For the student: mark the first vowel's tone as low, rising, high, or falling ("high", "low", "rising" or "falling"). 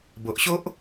low